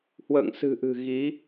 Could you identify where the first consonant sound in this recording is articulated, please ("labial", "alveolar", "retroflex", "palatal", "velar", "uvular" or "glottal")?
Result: glottal